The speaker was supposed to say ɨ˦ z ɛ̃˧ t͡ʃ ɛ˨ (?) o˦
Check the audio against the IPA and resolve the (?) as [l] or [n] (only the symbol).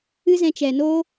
n